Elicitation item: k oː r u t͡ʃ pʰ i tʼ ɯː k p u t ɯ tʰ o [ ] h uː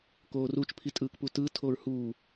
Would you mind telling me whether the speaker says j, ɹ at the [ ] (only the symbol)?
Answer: ɹ